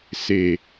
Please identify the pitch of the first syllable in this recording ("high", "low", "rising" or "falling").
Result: low